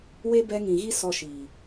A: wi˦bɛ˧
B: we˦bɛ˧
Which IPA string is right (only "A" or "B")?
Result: B